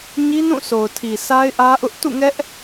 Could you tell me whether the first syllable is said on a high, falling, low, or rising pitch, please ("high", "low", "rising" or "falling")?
high